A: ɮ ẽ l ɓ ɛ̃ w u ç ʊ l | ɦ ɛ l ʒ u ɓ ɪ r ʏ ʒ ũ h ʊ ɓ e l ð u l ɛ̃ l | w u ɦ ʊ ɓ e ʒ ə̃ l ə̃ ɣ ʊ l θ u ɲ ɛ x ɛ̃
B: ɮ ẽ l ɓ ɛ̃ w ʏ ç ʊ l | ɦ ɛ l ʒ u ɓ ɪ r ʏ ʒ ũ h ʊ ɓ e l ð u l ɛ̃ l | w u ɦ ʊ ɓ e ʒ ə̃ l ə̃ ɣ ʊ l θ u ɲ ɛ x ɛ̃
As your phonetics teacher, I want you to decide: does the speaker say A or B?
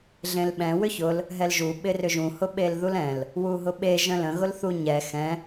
B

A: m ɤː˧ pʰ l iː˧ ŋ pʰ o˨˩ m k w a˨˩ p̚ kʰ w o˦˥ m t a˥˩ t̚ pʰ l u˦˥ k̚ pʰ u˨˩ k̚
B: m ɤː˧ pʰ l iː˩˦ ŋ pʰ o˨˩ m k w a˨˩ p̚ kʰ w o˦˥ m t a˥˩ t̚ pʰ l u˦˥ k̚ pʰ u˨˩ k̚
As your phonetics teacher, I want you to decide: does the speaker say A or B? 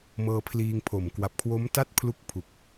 A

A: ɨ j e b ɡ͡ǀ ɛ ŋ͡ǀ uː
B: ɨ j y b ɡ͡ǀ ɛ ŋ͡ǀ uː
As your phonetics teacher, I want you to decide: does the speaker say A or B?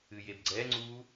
A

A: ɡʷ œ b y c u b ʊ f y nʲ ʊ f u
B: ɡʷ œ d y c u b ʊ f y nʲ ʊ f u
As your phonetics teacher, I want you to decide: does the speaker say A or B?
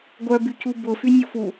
A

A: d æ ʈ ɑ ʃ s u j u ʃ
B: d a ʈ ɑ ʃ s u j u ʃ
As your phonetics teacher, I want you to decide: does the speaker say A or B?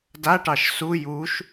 B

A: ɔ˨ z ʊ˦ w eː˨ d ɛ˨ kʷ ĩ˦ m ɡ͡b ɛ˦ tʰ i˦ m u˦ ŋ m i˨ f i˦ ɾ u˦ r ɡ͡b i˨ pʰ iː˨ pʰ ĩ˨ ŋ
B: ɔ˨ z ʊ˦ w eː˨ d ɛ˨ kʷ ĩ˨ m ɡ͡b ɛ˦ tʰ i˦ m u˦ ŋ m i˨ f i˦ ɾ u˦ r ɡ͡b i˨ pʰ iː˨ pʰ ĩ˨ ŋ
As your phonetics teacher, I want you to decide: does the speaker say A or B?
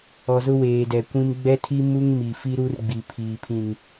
A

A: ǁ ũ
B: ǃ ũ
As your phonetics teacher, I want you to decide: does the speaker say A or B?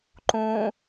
B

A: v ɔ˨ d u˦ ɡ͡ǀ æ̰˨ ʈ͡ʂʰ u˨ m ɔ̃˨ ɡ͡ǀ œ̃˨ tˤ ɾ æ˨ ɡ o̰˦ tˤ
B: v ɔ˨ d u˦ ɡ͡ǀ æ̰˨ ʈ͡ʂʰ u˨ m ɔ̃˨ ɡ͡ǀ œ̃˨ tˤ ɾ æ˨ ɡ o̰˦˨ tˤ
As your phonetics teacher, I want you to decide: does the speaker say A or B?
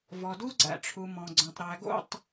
B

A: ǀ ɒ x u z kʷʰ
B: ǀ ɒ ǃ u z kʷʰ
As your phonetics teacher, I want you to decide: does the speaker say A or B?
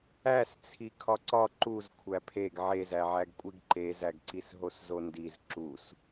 B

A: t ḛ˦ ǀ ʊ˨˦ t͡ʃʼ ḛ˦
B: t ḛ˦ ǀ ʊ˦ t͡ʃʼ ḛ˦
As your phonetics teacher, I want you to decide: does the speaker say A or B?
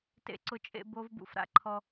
B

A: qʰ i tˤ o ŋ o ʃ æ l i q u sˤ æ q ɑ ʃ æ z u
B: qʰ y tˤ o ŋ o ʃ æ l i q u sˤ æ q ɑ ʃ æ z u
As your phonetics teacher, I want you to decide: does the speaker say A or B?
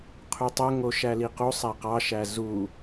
B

